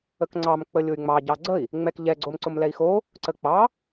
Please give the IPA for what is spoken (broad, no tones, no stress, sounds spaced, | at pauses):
ə k ŋ͡ǀ ɑ m k͡p ə lʲ ʊ y̯ ŋ͡m ɑ ɟ ɑ ɡ͡ǀ ə i̯ | ŋ͡m ɛ k ʎ ɛ ɡ͡ǀ o m ǀ ʊ m l ɛ i̯ x o | ǀ ə k͡p ɑ